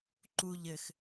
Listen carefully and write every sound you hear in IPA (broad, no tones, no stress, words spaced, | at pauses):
ǃuʎ ɘx